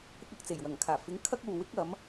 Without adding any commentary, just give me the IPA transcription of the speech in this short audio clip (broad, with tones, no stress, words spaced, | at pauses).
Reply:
kʷɪ˥k̚ɐ˨k̚ t͡se˨˩jwɐ˨˩ŋkʰaː˨˩fɪ˨˥ŋ kʰɐ˥k̚uː˨wɪ˥k̚ɐ˨˥m